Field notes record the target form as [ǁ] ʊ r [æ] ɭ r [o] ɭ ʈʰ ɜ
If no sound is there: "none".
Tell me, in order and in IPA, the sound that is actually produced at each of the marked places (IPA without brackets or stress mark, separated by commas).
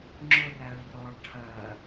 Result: ŋ͡ǁ, æ, ɔ